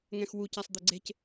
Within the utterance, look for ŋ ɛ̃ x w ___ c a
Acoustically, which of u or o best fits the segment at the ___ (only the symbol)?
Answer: u